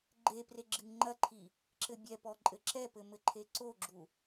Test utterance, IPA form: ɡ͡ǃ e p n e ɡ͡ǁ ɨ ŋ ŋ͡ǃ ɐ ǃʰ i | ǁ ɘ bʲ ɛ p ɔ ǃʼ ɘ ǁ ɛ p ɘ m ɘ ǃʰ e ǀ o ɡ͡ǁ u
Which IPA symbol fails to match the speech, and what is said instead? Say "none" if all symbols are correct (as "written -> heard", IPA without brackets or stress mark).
n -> r